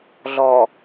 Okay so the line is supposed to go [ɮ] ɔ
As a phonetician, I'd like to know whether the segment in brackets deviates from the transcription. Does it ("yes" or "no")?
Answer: no